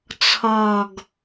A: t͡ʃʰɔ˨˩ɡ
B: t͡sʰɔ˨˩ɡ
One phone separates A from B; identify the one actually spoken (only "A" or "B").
B